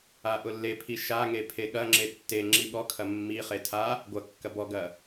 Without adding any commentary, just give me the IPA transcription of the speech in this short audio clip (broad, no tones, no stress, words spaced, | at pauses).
aʔʊlːepʰi ʃaŋe pʰeɠɐŋ͡ǁe tːe ŋ͡ǁiɠɔkʰɐ mːiχe tʰa | ɡʷɐ kːɐbɔɡɐ